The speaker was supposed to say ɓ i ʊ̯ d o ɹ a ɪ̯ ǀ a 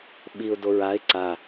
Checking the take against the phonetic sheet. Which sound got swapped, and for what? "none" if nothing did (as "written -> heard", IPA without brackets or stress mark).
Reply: none